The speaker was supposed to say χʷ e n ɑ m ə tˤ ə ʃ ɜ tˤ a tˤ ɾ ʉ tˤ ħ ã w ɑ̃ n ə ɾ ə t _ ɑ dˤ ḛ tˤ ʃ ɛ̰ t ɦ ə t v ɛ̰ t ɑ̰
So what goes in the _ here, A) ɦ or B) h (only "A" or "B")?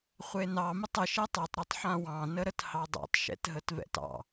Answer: B